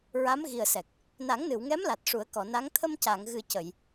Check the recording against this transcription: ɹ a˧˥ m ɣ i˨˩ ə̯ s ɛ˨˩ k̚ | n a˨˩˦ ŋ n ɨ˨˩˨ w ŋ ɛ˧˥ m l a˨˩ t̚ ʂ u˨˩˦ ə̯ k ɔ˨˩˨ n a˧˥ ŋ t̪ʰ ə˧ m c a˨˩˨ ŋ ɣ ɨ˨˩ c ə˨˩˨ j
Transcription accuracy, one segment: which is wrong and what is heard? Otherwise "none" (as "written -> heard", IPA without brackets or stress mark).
none